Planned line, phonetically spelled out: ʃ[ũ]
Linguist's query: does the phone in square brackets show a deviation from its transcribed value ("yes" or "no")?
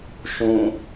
no